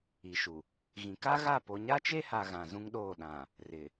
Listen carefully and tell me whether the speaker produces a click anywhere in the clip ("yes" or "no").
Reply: no